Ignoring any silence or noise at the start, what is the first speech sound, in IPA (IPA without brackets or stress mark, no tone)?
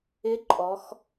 ɪ